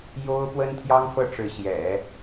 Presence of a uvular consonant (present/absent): absent